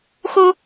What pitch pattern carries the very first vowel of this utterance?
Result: high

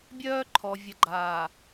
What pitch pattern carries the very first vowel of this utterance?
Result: high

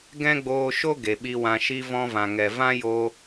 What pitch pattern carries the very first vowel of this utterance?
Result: high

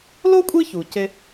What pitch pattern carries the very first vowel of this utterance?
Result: high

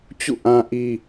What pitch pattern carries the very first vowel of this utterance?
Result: falling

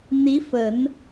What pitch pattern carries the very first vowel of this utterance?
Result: rising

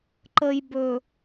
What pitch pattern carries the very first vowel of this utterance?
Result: low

